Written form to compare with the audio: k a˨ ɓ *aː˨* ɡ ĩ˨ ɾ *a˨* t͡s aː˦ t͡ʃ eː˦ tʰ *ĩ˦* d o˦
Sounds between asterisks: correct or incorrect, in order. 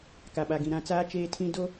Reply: incorrect: a˨, incorrect: ã˨, correct

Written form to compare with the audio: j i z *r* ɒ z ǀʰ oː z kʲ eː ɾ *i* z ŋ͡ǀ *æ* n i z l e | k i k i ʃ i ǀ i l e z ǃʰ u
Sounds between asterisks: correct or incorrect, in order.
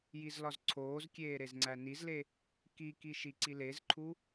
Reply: incorrect: l, incorrect: e, correct

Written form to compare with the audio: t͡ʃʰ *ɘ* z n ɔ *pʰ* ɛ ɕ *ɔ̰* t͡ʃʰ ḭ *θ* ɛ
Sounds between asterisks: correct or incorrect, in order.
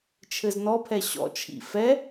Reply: correct, correct, correct, incorrect: f

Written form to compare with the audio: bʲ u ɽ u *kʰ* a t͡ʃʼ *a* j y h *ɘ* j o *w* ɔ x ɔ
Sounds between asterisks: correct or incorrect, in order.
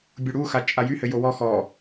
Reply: incorrect: x, correct, correct, correct

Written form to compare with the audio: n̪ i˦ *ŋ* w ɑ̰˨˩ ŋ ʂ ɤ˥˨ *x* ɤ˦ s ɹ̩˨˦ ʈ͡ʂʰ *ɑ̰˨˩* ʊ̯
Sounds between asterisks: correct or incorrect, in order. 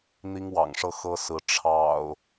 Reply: correct, correct, correct

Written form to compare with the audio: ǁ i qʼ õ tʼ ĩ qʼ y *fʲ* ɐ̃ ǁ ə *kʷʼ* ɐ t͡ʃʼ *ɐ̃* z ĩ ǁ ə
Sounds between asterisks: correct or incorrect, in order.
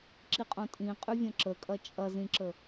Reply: incorrect: vʲ, incorrect: kʼ, incorrect: ɐ

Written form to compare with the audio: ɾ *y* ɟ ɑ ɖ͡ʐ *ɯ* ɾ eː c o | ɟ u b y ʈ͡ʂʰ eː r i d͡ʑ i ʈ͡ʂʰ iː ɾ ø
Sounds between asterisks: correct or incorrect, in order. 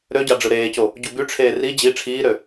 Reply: incorrect: ø, correct

